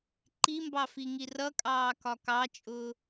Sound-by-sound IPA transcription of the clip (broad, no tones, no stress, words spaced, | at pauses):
ǃimbɑfiŋi rʌkʼɑːkɒ kɑt͡ʃʼʊː